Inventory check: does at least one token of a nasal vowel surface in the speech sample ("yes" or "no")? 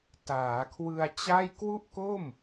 no